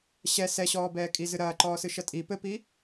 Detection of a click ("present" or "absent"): present